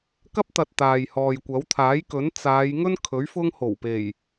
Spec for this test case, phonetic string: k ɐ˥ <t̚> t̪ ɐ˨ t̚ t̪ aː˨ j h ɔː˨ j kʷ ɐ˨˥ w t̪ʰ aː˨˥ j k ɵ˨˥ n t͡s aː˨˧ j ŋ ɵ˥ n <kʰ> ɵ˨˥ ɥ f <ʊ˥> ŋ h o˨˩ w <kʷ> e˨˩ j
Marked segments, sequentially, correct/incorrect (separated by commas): incorrect, correct, correct, incorrect